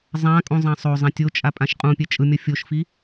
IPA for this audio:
zˤãkʼũ zˤãsˤozˤɛ̃ tʲot͡ʃʼa pʼãʃqʼũpʲɛ t͡ʃʼɯmʲʌfʲoʃfi

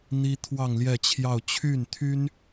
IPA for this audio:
n̪i˥ t̪ʰwɑ˥˧ŋljɛ˥˧t͡ɕʰjɑ˥˧ʊ̯ t͡ɕʰy˥˩nt̪ʰy˥n

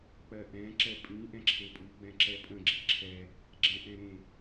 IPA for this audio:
k͡pɜʔɛ̃ ǁɛpʼĩ ʔɛ̃ǁʰepʼu ɡ͡bɛ̃ǁɛpʼə̃ ɡ͡ǁiǁʰɛ | ɡ͡ǁɛ̃ʔɛ̃ɾẽ

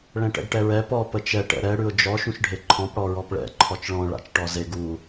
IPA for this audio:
ɭɛ̃ʈɛ̰ɡʈɛɹɛ pɔ pət͡ʃɛ ʈɛ̰ɾɛ ɽʉʊ̯d͡ʒɔ ʃũʃɖʱeǃʰɔ̃p ɽɔɹɔpɭɛ̰ ǃʰɔt͡ʃɭɔ̃ ɭa̰t͡ʃʈɔze ɡu

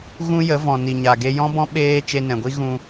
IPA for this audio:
ɣũ˦jə˨˦vɔ̃˨ ni˨ɲa˨ ɡe˧jɔ̃˦bɔ̃˦ ɓeː˦ t͡ʃe˧nɛ̃˨ɡʷi˦ ɣũ˧

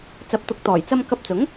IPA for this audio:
t͡sɐ˨˥p̚t̪ʊ˨˥k̚ t̪ɔː˨˩jt͡sɐ˥m kɐ˧p̚t͡sʊ˨˥ŋ

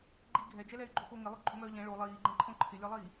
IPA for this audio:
ɡ͡ǃi ɡʱɛd͡ʒɛlɛy̯ɡ͡ǃo xoŋɪlˠo ɡ͡ǃoŋ͡mœːʎɛ̃ ɭo lˠiːɡ͡ǃɛ̃ ǃʰõǃʰɪlʲɒlˠiː

